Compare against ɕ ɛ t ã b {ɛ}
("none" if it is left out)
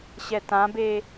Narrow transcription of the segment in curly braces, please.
e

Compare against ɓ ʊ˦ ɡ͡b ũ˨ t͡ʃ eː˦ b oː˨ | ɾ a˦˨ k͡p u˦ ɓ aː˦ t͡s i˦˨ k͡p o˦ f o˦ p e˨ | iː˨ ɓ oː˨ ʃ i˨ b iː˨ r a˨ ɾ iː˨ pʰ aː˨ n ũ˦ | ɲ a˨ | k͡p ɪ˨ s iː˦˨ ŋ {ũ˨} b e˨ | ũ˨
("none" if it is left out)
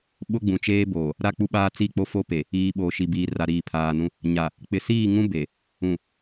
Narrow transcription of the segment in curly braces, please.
ũ˦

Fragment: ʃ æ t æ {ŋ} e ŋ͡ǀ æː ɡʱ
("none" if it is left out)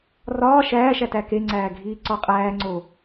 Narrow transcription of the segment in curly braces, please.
k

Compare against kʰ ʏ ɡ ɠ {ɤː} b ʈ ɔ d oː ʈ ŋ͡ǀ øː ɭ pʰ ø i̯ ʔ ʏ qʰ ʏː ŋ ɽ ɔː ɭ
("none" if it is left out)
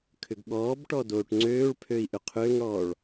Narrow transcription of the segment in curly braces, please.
ɔː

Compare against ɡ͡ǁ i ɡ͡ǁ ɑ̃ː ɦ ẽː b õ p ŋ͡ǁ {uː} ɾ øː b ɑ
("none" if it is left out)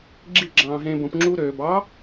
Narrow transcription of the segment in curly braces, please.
uː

